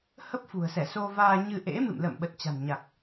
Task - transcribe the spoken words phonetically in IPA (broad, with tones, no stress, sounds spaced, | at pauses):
h ə˦˥ p̚ f ṳ˨˩ ə̯ s ɛ˧˩ s o˧ v aː˧ ɲ ɨ˧ ʔ ḛ˧˥ m ɨ̰˧˨ m l ə̰ː˧˨ m ɓ ə˨˩ t̚ t͡ɕ a̤˨˩ n ɲ a˨˩ k̚